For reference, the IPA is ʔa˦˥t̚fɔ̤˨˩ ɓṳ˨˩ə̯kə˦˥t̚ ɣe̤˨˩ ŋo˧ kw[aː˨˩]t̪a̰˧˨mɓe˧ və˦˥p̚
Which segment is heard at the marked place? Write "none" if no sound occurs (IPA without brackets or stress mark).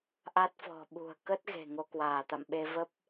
aː˧˩